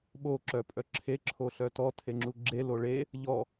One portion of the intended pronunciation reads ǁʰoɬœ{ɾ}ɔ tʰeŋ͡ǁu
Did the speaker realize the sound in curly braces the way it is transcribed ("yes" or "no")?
no